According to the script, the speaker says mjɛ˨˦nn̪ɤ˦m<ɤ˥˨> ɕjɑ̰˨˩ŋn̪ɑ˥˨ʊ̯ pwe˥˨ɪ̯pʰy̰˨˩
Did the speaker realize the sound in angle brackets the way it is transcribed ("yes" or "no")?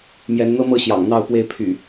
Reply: yes